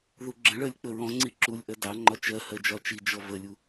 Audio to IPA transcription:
ð u ɡ͡ǁ ə̃ ɭ ɜ lʲ k͡p ə ɹ ɔ̃ ŋ͡ǀ i ǁ u lʲ ʔ ɜ d ɑ ŋ͡ǃ ɒ t͡ʃ ɜ h ɜ d͡ʒ ɒ t͡ʃ i d͡ʒ ɔ v ə lʲ u

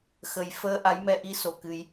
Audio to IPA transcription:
x ə˨˩ j f əː˧ ʔ a˨˦ j m ɛ˧ ʔ i˧ s o˧˩ k ɨ˧ j

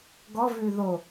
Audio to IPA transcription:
ɡ ɔ v ʉ ð o

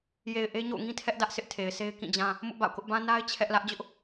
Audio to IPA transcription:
j e˨ ɪ̯ ʔ e˦ ɲ o̰˦˨ ʊ̯ ŋ ĩ˦ tʰ ɛ˦ ʔ d ä˦ ʔ sʰ ɪ˦ ʔ tʰ e˨ ɪ̯ sʰ e˦ ɪ̯ k ĩ˦˨ d͡ʑ ã˦ | m ʊ˦ ʔ b a̰˦˨ ʊ̯ k ʊ˦ ʔ b ã˦ n a˦ ɪ̯ t͡ɕʰ ɛ˦ ʔ l ä˦ ʔ d͡ʑ ʊ˦ ʔ

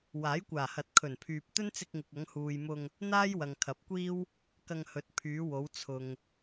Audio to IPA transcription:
w aː˨˥ j kʷ aː˨˩ h ɐ˨ t̚ kʰ ɵ˨˩ n pʰ yː˨ p̚ t̪ ɵ˥ n t͡s ɪ˧ k̚ ŋ ɪ˨ k̚ ɐ˨˧ ŋ h uː˨ j m ʊ˧ ŋ | n̪ aː˥ j w ɐ˨ ŋ kʰ ɐ˨˥ p̚ kʷ iː˥ w | k ɐ˧ ŋ h ɵ˨˥ t̚ pʰ yː˨˧ w o˨˧ w t͡sʰ ʊ˨ ŋ

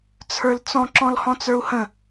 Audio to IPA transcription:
t͡sʰ ə˞ l t͡s ɔ̃ ǁ ɔ̃ l h ɔ̃ t͡s ə˞ u̯ h ə̃

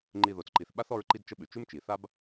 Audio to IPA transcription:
ŋ͡ǃ i˨ ð o˩ t͡s ǃ i˩ θ ɓ a˥ θ ɔ˦ ɹ ǃ i˦ d t͡ʃ ə˦ ɓ ʉ˩ t͡ʃ ʉ˥ m t͡ʃ i˩ θ a˦ b

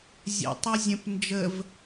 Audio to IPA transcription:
zʲ ɛ̰ tˤ a zʲ ə̃ p n d͡ʒ ə v

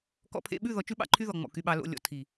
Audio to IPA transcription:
k ɔ̰˨ pʰ ḛ˨ ɓ ʉ˦˨ ð ɔ˨ t͡ʃ ʉ˦ ɓ ɑ̰˨ ǃʰ y˦ ð ɔ˨ ŋ͡m ɔ̰˨ k y˨ ɓ ɑ˨ l o̰˨ lʲ ɔ̰˨ tʰ i˨

